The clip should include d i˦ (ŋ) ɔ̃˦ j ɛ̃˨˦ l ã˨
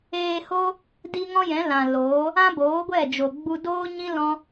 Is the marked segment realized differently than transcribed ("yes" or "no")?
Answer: no